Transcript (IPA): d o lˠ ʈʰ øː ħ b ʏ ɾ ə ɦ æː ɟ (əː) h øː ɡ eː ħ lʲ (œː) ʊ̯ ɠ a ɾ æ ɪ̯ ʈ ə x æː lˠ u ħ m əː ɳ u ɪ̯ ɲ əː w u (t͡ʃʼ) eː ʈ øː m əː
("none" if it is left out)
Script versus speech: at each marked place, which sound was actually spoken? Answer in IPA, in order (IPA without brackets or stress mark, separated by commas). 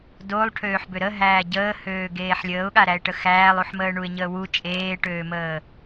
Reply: əː, əː, t͡ʃʼ